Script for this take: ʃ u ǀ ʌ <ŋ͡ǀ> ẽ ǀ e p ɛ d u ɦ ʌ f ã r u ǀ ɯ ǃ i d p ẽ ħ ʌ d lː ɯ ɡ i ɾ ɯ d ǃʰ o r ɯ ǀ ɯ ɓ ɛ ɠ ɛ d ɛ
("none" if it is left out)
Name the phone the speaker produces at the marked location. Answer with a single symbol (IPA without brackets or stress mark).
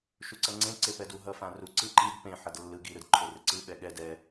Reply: ŋ͡ǀ